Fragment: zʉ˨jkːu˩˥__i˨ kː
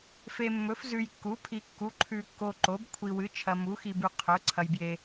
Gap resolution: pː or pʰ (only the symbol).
pʰ